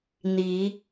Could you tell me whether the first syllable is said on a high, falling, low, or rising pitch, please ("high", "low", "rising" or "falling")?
rising